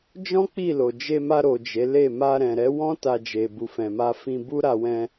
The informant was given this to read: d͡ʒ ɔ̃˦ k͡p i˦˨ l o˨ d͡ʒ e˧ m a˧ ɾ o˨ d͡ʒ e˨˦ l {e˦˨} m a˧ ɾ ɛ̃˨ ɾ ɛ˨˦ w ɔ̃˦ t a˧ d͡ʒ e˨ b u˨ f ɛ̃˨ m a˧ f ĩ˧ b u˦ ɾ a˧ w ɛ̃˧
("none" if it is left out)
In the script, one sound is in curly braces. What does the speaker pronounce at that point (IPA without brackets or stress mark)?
e˦˨